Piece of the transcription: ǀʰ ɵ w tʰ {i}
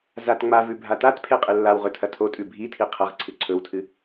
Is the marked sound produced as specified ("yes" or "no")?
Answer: no